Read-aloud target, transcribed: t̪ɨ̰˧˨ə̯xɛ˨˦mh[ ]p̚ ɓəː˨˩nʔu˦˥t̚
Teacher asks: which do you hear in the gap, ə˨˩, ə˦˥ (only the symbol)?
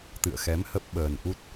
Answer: ə˦˥